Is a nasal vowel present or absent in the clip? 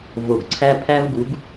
absent